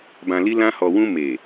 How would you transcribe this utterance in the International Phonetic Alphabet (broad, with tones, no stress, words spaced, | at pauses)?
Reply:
bã˧li˦ lã˦hɔ˧ wũ˧ me˨